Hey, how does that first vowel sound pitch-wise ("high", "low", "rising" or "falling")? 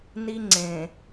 high